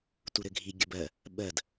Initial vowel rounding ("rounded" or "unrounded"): rounded